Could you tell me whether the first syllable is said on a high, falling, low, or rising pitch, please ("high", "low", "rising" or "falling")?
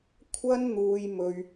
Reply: high